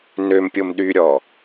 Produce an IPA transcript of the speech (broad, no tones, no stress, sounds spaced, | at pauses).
n ø m pʲ o m ɗ y ɾʲ ɔ